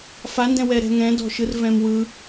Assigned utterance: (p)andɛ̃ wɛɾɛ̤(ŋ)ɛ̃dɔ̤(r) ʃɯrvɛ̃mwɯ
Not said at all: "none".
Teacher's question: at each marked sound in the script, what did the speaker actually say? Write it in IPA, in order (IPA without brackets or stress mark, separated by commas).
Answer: f, ŋ, none